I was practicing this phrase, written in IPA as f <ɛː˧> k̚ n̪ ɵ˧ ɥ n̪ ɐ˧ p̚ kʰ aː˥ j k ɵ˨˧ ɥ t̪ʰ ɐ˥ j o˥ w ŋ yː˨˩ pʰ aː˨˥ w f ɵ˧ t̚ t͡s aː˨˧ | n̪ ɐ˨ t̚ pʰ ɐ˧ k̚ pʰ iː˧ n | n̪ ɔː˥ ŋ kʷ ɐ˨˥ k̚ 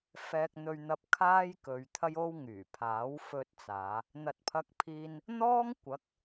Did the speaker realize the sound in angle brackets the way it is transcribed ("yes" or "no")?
yes